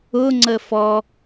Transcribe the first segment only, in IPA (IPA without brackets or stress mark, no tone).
ʊ